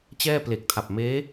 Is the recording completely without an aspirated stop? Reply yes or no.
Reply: no